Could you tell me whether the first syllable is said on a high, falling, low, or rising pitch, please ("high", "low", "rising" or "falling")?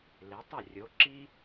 rising